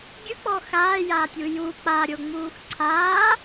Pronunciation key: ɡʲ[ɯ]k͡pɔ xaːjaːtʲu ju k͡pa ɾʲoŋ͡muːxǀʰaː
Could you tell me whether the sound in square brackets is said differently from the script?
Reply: no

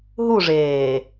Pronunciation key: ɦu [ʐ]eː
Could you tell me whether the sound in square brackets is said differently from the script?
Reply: no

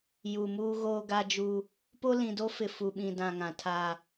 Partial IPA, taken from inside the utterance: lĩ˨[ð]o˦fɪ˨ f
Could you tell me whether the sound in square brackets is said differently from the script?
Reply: yes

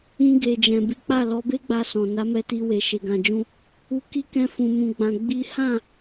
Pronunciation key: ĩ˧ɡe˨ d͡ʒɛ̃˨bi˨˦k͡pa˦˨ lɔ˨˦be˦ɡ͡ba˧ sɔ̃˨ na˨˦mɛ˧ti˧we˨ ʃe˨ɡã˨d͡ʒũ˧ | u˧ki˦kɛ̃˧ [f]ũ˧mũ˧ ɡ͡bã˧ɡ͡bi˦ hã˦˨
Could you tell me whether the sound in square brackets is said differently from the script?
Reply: no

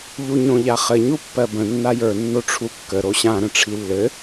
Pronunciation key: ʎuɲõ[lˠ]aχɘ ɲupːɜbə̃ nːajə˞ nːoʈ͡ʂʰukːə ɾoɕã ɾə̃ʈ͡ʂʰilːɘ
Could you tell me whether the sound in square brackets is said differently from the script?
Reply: yes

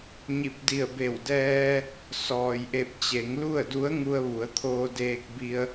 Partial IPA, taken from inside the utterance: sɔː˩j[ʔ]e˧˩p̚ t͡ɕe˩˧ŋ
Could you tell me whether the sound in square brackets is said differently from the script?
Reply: no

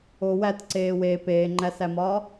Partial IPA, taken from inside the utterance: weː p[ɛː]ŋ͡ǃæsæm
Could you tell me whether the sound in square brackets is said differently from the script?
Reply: yes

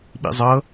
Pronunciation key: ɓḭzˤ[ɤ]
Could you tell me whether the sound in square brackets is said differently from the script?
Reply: no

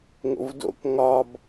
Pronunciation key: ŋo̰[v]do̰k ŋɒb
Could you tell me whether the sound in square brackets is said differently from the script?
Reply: no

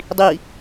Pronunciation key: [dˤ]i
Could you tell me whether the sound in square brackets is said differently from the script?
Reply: no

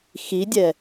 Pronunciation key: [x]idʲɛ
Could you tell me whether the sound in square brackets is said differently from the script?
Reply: no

